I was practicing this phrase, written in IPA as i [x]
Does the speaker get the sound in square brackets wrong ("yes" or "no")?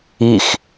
no